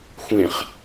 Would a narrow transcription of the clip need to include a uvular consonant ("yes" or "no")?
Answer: yes